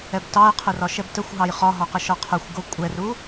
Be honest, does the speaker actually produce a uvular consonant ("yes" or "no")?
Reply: yes